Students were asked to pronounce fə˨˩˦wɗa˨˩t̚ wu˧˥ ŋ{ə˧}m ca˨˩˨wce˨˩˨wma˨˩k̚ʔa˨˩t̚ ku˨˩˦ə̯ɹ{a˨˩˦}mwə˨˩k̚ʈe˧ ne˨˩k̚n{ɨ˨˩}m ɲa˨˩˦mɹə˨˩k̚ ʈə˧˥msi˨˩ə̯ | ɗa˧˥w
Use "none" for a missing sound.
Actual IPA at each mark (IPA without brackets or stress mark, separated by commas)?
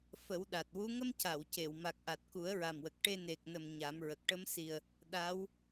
ə˧, a˨˩, ə˨˩